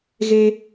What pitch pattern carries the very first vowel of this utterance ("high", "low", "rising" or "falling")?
high